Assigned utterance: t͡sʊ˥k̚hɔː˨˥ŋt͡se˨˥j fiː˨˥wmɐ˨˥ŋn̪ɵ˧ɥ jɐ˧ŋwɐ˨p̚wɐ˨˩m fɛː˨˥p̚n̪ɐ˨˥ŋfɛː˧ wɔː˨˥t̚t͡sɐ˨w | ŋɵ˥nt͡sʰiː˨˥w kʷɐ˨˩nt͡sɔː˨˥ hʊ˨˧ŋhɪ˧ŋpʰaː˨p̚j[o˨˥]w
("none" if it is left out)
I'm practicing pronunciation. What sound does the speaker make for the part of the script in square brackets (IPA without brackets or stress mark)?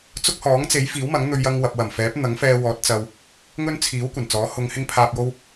o˧